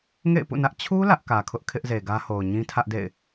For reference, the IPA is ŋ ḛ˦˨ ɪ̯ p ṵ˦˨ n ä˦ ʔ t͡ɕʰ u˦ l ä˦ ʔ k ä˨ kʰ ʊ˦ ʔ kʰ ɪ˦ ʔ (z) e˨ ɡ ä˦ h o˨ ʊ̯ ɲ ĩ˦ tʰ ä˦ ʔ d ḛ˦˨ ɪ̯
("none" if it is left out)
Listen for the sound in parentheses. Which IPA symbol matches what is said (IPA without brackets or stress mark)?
z